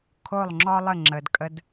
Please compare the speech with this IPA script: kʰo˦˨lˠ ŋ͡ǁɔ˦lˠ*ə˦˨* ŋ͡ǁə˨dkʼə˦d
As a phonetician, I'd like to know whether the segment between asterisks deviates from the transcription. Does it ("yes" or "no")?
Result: no